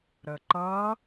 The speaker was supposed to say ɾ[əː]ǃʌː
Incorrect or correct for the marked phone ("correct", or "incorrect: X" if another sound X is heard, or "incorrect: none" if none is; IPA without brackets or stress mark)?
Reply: correct